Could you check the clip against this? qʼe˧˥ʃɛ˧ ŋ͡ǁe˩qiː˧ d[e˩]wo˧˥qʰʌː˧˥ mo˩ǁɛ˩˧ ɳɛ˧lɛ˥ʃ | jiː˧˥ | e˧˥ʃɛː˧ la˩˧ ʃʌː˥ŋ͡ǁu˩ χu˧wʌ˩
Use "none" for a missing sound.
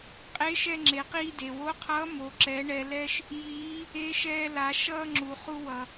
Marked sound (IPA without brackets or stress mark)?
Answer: e˩